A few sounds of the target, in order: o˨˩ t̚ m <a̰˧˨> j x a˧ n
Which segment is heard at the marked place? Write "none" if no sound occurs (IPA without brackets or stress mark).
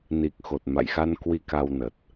a̰˧˨